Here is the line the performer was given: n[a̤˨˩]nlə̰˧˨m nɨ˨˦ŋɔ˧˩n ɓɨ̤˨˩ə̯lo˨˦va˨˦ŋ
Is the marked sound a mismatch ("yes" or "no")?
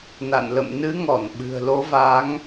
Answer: yes